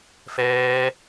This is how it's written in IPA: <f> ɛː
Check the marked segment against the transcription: correct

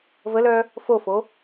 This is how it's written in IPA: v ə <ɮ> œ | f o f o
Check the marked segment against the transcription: incorrect: l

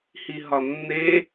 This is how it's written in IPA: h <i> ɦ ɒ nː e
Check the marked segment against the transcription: correct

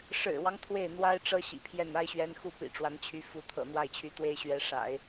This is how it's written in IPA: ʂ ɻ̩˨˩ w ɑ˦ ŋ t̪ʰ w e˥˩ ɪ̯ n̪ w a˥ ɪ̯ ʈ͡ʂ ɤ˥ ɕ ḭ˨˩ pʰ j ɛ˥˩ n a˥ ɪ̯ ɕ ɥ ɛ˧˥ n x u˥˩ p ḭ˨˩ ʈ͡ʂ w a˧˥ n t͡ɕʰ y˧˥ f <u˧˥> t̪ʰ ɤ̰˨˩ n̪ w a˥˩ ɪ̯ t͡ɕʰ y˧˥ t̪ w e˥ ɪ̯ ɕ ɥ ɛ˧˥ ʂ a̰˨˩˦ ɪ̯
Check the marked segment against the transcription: correct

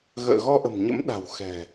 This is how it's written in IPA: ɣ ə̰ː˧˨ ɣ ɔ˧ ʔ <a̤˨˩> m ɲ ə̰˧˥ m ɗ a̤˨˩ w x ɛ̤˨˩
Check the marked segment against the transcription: incorrect: ə̤˨˩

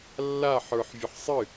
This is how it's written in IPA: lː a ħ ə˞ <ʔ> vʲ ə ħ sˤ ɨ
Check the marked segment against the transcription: incorrect: ħ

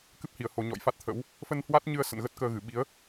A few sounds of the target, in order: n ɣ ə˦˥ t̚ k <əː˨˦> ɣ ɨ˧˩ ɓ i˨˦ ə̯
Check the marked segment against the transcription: incorrect: əː˧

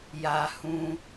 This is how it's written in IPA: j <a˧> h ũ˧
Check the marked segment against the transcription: correct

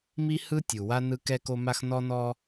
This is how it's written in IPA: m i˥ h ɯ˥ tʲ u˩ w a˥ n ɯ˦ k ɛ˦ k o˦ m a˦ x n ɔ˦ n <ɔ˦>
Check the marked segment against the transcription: correct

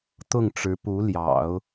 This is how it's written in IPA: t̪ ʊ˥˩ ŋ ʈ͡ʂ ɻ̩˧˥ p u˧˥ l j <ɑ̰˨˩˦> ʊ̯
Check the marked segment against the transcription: correct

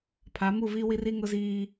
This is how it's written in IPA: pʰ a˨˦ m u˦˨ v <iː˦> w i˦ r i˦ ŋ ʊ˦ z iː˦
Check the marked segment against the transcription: incorrect: i˦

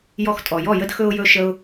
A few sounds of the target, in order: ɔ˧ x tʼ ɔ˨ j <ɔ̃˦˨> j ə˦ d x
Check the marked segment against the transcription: incorrect: ɔ˦˨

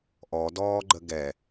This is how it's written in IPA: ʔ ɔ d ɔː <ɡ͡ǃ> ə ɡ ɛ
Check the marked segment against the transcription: correct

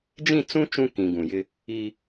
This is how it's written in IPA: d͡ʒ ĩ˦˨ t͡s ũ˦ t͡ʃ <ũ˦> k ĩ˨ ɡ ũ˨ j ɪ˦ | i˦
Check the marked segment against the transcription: correct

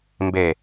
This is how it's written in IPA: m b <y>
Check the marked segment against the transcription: incorrect: e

